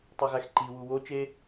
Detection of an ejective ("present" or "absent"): absent